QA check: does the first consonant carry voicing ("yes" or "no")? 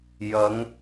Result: yes